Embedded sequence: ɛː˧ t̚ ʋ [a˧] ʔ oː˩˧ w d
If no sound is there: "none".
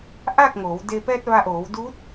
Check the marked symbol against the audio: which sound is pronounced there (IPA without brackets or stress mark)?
a˧